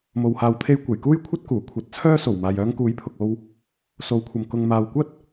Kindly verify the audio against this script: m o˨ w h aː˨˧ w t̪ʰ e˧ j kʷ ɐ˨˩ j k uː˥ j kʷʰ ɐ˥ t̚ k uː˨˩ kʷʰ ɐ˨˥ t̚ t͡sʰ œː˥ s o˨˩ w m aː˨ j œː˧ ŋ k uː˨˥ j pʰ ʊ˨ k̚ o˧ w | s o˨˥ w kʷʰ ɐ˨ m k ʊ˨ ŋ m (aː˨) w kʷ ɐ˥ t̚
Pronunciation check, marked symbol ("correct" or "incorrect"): correct